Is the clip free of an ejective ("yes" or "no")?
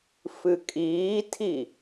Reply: no